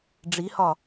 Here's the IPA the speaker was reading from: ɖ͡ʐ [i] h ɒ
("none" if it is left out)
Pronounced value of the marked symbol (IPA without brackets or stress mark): i